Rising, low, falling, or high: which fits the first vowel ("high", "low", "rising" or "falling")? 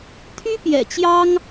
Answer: high